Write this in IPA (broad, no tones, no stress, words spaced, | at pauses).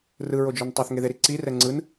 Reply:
rɯɹod͡ʒon tˤoθŋeðeɾi ǀirɛ ŋ͡ǀɯn